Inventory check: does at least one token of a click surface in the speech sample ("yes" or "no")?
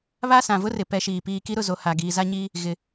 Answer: no